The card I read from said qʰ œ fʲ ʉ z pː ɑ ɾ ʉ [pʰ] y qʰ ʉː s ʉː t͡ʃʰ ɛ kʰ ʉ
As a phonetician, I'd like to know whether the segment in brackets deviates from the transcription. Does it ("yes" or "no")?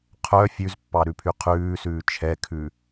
no